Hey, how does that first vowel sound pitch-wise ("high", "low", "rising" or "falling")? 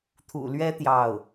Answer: low